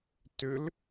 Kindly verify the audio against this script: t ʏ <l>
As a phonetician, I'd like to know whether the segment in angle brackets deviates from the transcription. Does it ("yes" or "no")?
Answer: no